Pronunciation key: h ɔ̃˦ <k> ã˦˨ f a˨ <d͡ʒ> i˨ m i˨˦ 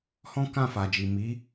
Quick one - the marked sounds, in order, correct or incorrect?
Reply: correct, correct

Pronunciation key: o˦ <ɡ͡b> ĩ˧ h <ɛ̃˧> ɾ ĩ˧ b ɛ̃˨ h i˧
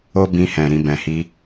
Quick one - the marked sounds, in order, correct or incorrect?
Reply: incorrect, incorrect

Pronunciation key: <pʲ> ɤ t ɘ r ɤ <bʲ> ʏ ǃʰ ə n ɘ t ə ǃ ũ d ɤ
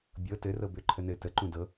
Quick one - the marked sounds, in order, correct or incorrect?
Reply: incorrect, incorrect

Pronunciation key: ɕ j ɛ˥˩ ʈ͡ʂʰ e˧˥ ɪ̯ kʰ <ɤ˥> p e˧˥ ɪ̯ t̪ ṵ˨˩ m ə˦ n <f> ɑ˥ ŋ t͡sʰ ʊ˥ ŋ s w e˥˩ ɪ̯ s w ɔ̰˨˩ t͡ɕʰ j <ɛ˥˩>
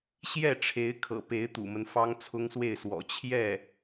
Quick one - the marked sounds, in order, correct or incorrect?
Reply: incorrect, correct, correct

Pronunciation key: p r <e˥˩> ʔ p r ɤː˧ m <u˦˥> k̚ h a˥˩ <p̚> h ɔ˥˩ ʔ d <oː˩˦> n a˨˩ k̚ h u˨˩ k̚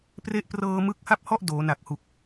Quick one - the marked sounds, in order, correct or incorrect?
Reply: incorrect, incorrect, correct, correct

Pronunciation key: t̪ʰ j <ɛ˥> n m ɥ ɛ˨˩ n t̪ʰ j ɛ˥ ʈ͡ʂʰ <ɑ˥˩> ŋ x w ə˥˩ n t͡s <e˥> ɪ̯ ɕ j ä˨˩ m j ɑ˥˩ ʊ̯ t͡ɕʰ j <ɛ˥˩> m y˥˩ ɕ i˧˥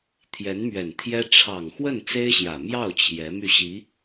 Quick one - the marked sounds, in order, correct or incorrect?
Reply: incorrect, incorrect, correct, incorrect

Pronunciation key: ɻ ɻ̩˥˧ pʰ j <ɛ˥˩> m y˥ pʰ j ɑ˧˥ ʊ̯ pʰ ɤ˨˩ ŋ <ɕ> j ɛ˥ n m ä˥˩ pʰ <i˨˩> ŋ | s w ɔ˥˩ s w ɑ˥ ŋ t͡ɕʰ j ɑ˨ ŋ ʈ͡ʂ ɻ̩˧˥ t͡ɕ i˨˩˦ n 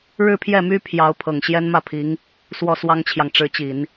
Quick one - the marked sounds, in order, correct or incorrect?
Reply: correct, correct, incorrect

